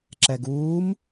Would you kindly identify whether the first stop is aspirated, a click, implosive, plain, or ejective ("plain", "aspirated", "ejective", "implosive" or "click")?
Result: click